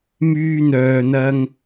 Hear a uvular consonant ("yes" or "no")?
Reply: no